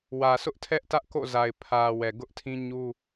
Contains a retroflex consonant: no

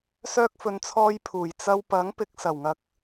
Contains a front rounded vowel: yes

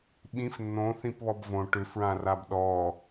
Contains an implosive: yes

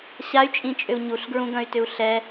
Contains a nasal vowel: yes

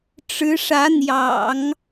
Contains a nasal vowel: no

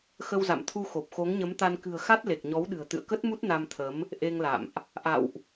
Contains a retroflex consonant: no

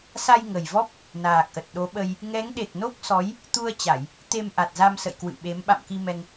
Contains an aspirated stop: no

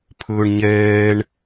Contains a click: no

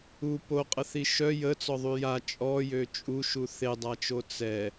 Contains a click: no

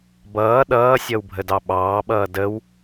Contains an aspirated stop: no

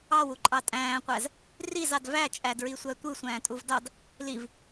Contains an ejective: yes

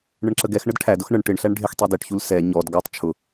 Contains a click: yes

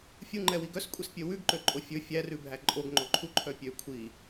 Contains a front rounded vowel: yes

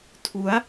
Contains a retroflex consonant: no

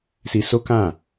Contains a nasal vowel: yes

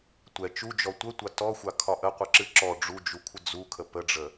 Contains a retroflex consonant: yes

